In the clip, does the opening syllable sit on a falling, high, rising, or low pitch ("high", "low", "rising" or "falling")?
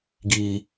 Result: low